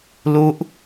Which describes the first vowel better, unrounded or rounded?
rounded